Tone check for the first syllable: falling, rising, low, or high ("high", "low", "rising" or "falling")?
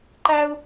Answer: high